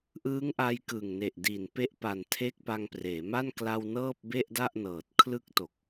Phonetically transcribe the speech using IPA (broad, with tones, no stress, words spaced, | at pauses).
ʔɯː˦˥ŋʔa˧j kɯ˨˩ŋne˨˩ʔ di˨˩npe˦˥ʔpa˨˩n tʰe˦˥k̚pa˧ŋpreː˩˦ma˥˩n kla˧w nɤː˥˩p̚be˥˩ʔda˥˩ʔnɤː˨˩t̚ kʰlɯ˦˥k̚to˨˩k̚